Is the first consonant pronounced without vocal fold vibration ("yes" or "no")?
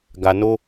no